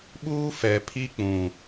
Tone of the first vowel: high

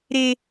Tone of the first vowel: high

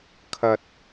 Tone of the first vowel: low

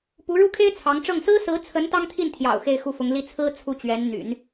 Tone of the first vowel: rising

